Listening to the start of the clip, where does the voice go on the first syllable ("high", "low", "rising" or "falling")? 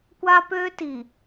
high